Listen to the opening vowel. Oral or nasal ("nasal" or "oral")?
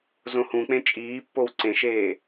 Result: nasal